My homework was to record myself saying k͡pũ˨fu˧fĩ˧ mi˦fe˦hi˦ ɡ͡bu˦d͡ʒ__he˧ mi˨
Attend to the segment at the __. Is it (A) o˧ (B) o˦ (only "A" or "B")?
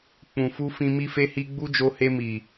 A